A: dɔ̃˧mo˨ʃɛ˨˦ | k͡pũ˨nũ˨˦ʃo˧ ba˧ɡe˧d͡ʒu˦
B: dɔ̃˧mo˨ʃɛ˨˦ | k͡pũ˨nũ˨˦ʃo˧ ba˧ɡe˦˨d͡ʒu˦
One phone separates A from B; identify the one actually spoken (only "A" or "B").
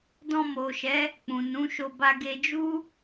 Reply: A